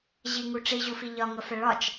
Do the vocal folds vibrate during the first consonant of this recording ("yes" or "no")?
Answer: yes